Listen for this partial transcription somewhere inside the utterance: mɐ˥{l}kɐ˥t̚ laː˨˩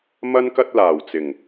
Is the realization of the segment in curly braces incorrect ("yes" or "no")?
yes